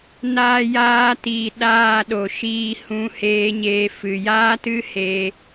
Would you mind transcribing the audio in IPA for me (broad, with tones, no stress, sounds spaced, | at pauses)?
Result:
n aː˧ j aː˧ t iː˨ ɗ aː˦˨ ɗ o˨ ʃ iː˧ h ũ˧ h eː˧ ɲ eː˧ f ɨ˨ j aː˦ t ɨ˦ h e˧